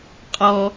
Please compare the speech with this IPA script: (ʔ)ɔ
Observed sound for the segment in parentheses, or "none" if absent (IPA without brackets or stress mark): qʼ